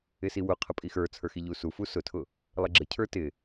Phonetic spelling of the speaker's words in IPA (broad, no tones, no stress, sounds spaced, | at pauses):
ɪ s i w ʊ qʰ ə pʼ i x ə˞ t͡sʰ ə˞ x i ʎ u s u f u s ʊ tʰ ʊ | lˠ ə ɡ͡ǁ ə cʰ ə˞ t ɪ